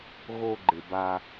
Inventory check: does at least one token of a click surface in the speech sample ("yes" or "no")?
yes